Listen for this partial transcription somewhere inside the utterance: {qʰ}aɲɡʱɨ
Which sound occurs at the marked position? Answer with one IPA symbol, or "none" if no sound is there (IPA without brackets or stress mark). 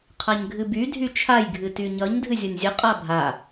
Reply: qʰ